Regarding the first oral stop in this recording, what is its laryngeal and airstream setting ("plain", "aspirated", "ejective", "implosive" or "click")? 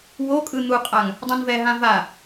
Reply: ejective